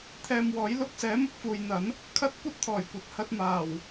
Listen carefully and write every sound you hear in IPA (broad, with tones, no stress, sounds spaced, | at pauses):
t̪ʰ ɛː˧ m w ɔː˨˥ j l ʊ˧ k̚ s ɛː˨˥ m ʊ˨ k̚ f uː˨ j n̪ ɐ˨˥ n | kʰ ɐ˥ t̚ kʷ ɐ˥ t̚ t̪ʰ ɔː˨˩ j kʷ ɐ˨ t̚ h ɐ˧ t̚ m aː˨˩ w